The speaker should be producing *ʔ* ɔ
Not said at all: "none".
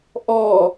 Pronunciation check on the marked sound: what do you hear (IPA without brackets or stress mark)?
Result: ʔ